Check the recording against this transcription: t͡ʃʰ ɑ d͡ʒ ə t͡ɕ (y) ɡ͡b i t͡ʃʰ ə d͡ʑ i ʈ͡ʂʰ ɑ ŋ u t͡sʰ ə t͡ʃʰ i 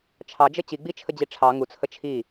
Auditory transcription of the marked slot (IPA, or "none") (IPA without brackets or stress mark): i